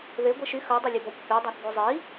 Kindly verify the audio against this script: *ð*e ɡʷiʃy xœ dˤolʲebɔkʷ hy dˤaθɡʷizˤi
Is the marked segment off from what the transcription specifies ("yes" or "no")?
no